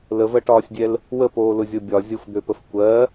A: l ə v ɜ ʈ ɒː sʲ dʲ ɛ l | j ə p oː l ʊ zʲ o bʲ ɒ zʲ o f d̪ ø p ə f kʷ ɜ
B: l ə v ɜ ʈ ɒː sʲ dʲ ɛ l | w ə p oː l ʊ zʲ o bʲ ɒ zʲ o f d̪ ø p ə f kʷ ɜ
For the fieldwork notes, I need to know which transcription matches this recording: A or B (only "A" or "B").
B